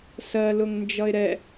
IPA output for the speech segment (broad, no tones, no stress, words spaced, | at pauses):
sɜ lʊŋnd͡ʒʌɪ̯ɾɛ